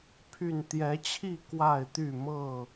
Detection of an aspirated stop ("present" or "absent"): present